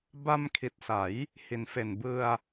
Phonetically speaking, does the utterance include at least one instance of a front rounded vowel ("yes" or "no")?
no